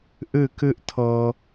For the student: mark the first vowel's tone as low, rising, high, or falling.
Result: falling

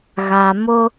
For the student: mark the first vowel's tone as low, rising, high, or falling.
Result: low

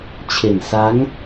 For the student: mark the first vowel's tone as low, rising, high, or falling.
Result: low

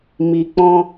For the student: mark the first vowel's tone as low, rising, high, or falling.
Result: low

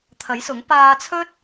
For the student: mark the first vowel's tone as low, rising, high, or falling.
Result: rising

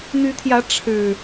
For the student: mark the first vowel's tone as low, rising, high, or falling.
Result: rising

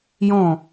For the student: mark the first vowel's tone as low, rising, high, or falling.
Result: falling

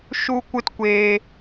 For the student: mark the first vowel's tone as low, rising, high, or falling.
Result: high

